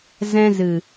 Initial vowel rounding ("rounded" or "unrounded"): unrounded